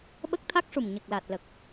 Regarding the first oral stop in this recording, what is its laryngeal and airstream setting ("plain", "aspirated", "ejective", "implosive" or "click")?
implosive